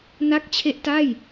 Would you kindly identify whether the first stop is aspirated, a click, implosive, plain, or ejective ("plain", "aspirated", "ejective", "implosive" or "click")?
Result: plain